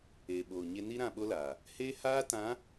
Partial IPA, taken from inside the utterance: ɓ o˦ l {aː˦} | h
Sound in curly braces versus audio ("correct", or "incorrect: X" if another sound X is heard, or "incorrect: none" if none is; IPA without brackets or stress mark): incorrect: aː˨